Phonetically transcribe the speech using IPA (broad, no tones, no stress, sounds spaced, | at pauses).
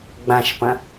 ɡ͡b ã ʃ p ɐ̃